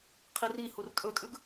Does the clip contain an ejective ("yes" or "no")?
yes